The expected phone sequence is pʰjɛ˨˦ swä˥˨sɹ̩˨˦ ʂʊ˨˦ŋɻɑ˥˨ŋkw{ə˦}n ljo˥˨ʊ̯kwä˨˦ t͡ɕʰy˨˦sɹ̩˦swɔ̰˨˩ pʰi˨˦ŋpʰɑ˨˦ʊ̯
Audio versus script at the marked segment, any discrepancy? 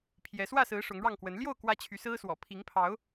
yes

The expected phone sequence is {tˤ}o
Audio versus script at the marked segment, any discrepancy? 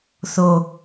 yes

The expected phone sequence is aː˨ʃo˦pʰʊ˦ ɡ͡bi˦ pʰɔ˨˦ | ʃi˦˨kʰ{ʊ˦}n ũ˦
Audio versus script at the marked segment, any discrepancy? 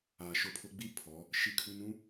yes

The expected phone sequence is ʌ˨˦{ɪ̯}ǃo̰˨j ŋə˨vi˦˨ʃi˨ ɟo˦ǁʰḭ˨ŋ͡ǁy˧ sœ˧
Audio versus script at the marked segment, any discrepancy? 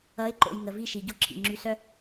no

